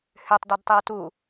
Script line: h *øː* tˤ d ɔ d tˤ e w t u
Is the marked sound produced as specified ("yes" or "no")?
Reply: no